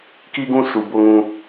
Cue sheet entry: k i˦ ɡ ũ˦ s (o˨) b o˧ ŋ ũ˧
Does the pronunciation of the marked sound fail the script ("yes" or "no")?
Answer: yes